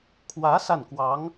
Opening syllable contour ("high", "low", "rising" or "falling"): rising